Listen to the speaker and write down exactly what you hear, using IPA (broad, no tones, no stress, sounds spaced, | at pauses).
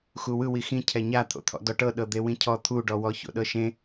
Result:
x u w ɯ w i x ĩ cʰ ɛ ɲ a t̪ʰ o̰ t̪ʰ ɔ̰ d ɔ ʈ ɤ ɗ ɤ d̪ e w ĩ cʰ ɔ t̪ʰ u ɖ ɔ w ɔ ç o̰ ɗ ɤ ʃ ẽ